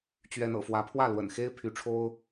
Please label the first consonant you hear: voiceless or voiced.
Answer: voiceless